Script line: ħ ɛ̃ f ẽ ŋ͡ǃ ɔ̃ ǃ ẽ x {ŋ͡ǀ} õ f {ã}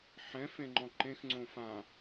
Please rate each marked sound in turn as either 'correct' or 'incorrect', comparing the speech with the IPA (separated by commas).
correct, correct